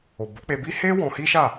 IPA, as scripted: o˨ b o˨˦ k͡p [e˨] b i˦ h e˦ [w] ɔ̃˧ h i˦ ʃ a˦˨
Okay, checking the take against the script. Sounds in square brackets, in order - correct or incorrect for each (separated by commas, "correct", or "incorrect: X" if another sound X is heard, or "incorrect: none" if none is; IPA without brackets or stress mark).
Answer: incorrect: e˧, correct